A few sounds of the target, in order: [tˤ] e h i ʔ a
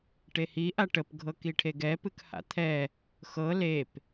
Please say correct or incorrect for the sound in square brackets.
incorrect: ʈ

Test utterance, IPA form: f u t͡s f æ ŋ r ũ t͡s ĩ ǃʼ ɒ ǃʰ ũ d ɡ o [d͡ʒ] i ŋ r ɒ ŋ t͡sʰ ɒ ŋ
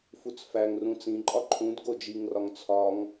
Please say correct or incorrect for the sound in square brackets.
correct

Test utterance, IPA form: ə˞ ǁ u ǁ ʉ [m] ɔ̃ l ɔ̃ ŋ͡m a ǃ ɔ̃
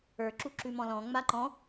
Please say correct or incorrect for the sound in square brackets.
correct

